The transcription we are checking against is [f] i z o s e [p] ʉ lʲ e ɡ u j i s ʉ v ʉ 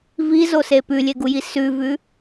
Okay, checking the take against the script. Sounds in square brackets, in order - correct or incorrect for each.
incorrect: v, correct

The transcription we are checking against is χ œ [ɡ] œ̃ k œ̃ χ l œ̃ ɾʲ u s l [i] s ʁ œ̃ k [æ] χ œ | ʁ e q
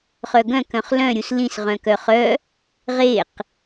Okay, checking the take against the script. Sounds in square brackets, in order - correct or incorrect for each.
correct, incorrect: ĩ, incorrect: œ

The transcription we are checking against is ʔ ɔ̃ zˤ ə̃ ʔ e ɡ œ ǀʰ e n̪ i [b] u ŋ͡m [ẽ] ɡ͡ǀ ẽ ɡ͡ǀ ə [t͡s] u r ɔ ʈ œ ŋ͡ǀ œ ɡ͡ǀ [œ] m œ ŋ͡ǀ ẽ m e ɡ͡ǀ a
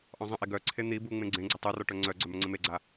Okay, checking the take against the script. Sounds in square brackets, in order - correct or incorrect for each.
correct, correct, incorrect: tˤ, correct

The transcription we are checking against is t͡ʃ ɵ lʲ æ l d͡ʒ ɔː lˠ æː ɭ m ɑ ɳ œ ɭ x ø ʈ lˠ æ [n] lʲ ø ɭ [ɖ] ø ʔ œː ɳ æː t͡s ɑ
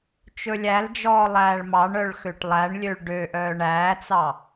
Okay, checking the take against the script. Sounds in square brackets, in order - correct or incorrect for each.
incorrect: ɳ, correct

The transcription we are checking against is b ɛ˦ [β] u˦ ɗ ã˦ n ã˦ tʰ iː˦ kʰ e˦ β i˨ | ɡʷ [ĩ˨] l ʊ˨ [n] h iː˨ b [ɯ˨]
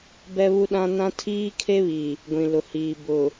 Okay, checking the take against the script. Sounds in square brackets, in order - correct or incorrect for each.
correct, correct, incorrect: none, incorrect: ʊ˨

